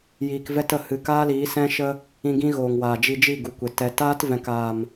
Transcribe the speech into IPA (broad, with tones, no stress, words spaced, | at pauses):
jiː˨kvɛ˧tə˨hɨ˨ kaː˦liː˨˦sɛ̃˦ ʃə˧ | ĩ˧ɡĩ˦ ɣoː˨ŋwaː˨d͡ʒi˧d͡ʒi˦˨ ɡu˨kʷe˨ tɛ˨taː˦tvɛ̃˨kaː˨m